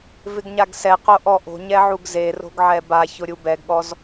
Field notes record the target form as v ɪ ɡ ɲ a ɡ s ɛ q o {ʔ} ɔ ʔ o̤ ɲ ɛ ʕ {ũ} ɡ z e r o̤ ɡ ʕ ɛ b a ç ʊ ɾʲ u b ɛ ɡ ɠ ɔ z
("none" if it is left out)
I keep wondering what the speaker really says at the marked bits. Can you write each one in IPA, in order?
ʔ, u

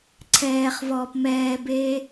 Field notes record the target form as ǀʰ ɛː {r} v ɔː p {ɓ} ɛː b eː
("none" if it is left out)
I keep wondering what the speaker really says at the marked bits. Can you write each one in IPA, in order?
χ, m

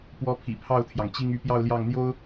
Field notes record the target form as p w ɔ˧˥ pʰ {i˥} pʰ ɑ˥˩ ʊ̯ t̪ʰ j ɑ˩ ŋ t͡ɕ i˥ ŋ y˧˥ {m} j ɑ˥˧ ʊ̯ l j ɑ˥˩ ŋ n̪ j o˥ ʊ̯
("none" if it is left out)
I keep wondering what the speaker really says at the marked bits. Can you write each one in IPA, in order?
ḭ˨˩, p

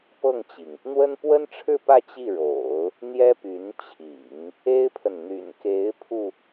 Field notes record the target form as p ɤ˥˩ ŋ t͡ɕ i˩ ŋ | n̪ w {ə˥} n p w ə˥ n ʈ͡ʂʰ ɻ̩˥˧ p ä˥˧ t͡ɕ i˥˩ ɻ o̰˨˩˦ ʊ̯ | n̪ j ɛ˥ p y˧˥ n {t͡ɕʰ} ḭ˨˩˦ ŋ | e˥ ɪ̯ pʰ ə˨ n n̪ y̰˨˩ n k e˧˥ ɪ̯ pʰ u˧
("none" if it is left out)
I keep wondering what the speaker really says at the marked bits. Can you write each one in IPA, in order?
ə˥, t͡ɕʰ

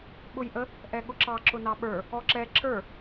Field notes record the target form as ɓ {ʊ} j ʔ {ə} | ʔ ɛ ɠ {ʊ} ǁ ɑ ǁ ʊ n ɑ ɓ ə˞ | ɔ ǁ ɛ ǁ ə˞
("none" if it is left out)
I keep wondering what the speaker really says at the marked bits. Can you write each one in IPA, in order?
ʊ, ə, ʊ

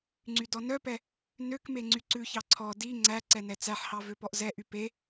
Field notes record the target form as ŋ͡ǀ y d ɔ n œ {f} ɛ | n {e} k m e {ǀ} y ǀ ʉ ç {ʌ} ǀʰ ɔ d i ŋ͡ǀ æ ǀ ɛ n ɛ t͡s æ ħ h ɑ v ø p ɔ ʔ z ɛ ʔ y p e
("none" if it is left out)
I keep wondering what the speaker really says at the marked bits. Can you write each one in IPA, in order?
p, ø, ŋ͡ǀ, ɑ

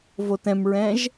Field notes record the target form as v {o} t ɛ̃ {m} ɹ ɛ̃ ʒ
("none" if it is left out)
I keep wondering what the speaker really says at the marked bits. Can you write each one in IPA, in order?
o, m

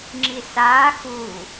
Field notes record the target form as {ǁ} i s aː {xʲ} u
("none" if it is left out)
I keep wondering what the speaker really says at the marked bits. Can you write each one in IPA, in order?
ŋ͡ǁ, x

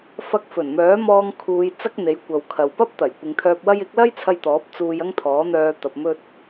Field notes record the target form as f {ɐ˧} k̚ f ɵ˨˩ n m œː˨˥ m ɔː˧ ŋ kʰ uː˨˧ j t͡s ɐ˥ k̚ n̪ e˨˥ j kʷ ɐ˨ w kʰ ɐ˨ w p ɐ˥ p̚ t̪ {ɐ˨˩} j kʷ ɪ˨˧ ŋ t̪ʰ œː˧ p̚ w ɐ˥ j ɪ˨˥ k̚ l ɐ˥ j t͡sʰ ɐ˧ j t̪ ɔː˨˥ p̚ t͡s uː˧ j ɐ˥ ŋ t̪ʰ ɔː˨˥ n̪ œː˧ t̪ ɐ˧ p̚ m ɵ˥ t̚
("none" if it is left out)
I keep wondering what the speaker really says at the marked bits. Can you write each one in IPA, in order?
ɐ˧, ɐ˨˩

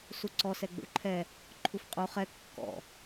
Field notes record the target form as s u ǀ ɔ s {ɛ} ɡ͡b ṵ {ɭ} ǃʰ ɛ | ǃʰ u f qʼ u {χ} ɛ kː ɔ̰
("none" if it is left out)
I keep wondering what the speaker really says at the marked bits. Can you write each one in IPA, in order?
ɛ, ɭ, χ

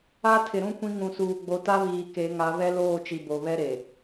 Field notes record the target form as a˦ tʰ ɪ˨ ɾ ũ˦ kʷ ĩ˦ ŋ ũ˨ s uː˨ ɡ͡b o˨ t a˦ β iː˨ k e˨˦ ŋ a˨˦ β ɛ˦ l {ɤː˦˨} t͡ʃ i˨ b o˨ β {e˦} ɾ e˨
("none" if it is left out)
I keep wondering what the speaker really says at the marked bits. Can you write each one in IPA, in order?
oː˦˨, ɛ˦

